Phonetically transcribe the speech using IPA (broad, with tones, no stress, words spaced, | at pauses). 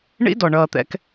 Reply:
ɳḭ˦dɔ˨ɳʌː˨t̪ɛ̰˨k